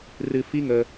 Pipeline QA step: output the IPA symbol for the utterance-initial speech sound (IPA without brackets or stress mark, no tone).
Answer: r